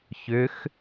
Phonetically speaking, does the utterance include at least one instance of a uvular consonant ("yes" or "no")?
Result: no